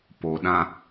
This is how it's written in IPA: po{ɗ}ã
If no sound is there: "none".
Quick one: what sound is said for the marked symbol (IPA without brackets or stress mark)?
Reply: ɗ